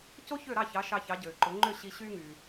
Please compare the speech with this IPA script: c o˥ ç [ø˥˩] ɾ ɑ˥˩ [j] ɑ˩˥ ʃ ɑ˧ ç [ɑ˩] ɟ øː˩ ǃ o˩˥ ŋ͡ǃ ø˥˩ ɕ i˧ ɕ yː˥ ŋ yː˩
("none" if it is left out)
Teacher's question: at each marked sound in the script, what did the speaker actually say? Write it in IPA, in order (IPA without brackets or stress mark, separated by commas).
ø˥˩, ç, ɑ˩˥